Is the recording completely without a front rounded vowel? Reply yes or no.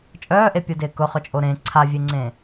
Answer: no